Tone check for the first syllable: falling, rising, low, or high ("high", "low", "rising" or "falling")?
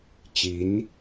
rising